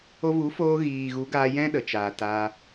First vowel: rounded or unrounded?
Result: rounded